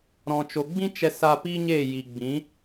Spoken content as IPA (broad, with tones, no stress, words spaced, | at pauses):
ɾɔ̃˨t͡ʃo˨ ɡ͡bĩ˦t͡ʃɛ˧sa˧ pi˦ɲe˦˨ ji˨ɡ͡bĩ˨˦